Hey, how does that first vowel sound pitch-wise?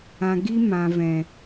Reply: low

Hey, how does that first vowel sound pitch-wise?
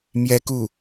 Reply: high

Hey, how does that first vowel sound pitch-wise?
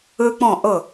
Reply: high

